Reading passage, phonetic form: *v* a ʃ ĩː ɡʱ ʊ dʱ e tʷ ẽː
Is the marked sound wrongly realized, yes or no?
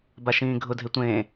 yes